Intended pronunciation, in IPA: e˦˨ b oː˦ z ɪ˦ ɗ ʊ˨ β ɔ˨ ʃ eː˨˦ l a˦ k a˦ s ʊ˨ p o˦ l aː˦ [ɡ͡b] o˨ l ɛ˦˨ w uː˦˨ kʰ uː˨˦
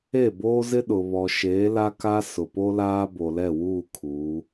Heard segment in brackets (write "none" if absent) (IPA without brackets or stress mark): b